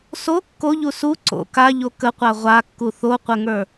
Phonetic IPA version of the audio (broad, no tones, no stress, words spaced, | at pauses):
so kːoʎu su ǀo̰ kaʎo kəqʷa ʁʷakːu θoqʷəŋə˞